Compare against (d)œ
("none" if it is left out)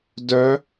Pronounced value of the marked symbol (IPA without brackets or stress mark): d